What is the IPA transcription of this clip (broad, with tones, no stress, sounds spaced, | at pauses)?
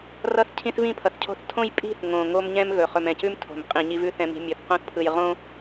r ʌ˦ θ cʰ ĩ˦ θ v ĩ˦˨ pʰ ʌ˨ θ cʰ o̤˦ θ tʰ õ˦ j pʼ i̤˦˨ θ ŋ õ˨ ŋ o˦ m ɲ ɛ̃˦ m ɣ ɵ˨ χ ɵ˨ m ɛ̃˨ c ʉ˦ m tʰ o̤˨ m qʼ ĩ˨ ɲ i˦ v ʉ˦ θ ɛ̃˨ m i̤˨ mʲ ɵ˨ θ q õ˦ θ pʰ ɯ˨ j ʁ õ˦